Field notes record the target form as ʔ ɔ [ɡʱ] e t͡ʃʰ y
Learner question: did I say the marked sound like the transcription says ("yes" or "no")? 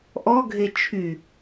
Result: yes